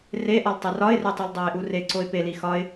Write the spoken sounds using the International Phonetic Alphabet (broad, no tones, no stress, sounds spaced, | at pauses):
r e ʔ ɒ l tˤ e r ɒ ɪ̯ r e tˤ i l dˤ æ ɪ̯ ʔ u r e ǀ o ɪ̯ p e l i x ɒ ɪ̯